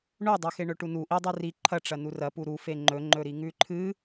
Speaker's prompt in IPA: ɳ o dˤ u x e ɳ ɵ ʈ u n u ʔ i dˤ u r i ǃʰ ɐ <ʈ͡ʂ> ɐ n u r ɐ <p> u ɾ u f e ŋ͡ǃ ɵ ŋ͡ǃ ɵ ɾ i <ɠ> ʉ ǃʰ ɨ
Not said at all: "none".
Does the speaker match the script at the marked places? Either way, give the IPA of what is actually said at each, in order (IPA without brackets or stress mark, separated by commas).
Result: ʈ͡ʂ, p, ŋ